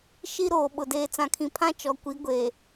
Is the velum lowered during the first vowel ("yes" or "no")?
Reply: no